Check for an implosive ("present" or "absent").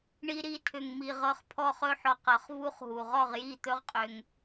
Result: absent